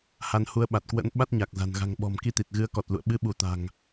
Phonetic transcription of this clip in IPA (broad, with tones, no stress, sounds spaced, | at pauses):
h a˧ n h u˨˦ ə̯ ɓ a˨˩ t̚ k w ə̰˧˥ n ɓ a˦˥ t̚ ɲ a˨˩ k̚ z a̤˨˩ n ɣ a̤˨˩ ŋ ɓ ɔ̤˨˩ m k i˧ t̪ i˨˩ t̚ ɣ ɨ˨˦ ə̯ k ɔ˨˩ t̚ l ṵ˧˨ ə̯ ɓ ɨ˨˦ ɓ u˧˩ t̪ a̤˨˩ ŋ